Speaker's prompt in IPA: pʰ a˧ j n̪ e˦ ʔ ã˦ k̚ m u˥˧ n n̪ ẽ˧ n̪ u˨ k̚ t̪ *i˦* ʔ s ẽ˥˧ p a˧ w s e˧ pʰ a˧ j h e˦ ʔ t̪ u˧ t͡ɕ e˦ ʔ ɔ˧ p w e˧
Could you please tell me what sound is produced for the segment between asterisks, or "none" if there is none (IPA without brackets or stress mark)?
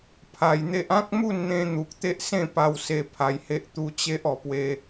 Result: e˦